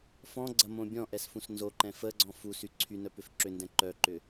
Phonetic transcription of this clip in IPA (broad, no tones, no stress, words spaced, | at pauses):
fɔ̃ɡ͡ǀɐmõ bʲɔ̃ʔɛsfũs nzoǃɛ̃ fəɡ͡ǀɔ̃ fusy ǀʰynœpʏf ǁʏndɛ̃ ǃœǃʏ